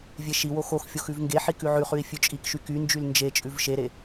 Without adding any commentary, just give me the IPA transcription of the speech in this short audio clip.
vʲ e ʃ i w o x o x fʲ o x ʉ v ŋ ɡ e ħ i k ʉ ʕ ʉ χ ʉ i̯ fʲ ʉ t͡ʃʼ i k ʃ y k y n d͡ʒ y l n d͡ʒ e t͡ʃʼ ʉ v ʃ e ɾ e

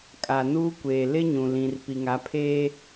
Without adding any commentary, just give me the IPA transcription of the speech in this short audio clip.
kʼ a˨ n uː˦ kʷ eː˨ l ɪ˦ ɲ ũ˨ l ĩ˨ r p i˨ ŋ a˨˦ pʰ eː˦

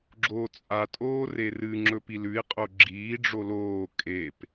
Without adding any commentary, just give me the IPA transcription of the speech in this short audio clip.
ɡ͡ǁ oː t͡sʼ a tʼ oː r e r ɨ ŋ͡ǁ ɵ p i l ʉ i̯ qʼ o ɡ͡ǁ iː ɖ͡ʐ o l oː kʼ e p

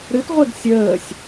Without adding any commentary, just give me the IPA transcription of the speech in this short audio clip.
ɾ ɨ t ʁʷ e ɡ sʲ əː sʲ

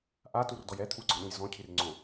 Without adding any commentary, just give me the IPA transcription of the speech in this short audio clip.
ʔ a t u r d ɔ j ɛ t̪ʰ u ɡ͡ǀ ɔ̃ ɗ ũ j z ɔ̃ cʰ i r ŋ͡ǀ õ

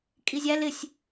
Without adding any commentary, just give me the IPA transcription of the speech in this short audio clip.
kʼ i zʲ æ l ɪ sʲ

